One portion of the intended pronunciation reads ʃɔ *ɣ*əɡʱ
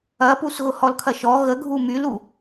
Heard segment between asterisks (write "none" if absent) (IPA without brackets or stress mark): ɣ